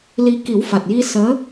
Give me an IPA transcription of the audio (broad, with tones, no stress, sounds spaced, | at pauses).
l i˧ k i˨˩˦ w f a˨˩ t̚ j i˧ s əː˧˥